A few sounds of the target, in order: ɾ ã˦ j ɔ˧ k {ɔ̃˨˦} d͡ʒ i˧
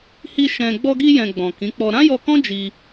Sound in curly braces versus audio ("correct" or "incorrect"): incorrect